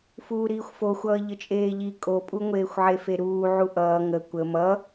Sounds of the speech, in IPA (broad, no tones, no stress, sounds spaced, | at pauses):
f uː ɾ iː xʷ f o xʷ ʌː ʎ ə t͡ʃʼ eː ʎ i kʼ o pʼ u ŋʷ eː xʷ ʕ e f e ɾ uː ʕ u ʔ ʌː ŋ ə kʷ ə m ʌ